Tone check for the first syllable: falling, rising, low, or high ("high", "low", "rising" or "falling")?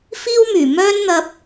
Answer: high